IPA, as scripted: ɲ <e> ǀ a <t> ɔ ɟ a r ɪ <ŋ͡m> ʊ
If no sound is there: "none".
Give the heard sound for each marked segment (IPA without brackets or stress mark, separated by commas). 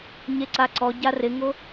e, ǀ, ŋ